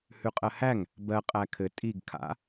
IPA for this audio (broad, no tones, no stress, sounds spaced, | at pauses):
h ʉ qʼ ɜ h æ ŋ | b ɜ qʼ æ kʰ ɘ tʼ i ɡ kʰ a̰